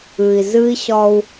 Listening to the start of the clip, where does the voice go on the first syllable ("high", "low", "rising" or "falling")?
low